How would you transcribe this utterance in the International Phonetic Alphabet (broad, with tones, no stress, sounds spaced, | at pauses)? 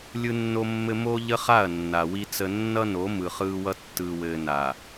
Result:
lʲ ɯ˦ nː o˦ mː ɘ˦ m o˦ ʎ ə˦ χ a˦˨ ɐ̯ nː a˨ w i˦ t͡s ə˦ nː ʌ˦ n o˨˦ m ɯ˨ χ ɯː˦ w ʌ˦ tː ɯː˨ w ɘː˨ n a˨